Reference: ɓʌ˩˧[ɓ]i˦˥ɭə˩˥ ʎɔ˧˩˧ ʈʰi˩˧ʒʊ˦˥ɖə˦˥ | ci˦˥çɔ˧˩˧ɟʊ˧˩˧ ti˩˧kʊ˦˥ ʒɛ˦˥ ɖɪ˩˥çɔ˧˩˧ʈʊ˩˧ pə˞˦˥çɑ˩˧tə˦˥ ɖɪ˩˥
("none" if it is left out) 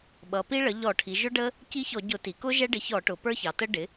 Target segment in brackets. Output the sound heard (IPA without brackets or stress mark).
p